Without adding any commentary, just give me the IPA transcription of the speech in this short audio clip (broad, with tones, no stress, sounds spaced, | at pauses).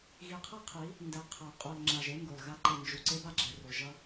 ɣ i˨ qʰ ʌ˦ qʰ i˨˦ | n d ɛ˨ qʰ a˨ qʼ o˨ l ŋ͡ǁ a˨ ʒ e˦ ŋ ɡ o˨ l ɣ a˦ ǃ e˨ n d͡ʒ u˨ ǀ e˦ b a˨ ɡ͡ǁ ɛ˨ r o˨ ʒ ʌ˦